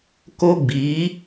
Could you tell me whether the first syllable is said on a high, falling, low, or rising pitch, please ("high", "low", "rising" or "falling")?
high